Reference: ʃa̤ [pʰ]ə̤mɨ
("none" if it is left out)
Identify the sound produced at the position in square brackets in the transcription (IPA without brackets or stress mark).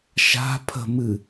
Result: pʰ